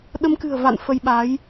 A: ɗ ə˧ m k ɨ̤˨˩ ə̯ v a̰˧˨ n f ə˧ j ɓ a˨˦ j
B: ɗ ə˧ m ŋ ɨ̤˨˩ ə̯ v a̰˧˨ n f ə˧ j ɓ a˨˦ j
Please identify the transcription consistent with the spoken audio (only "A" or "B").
A